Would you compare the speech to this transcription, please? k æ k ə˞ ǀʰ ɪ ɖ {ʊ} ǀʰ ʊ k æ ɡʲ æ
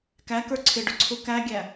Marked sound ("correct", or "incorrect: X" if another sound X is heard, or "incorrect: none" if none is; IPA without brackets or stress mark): correct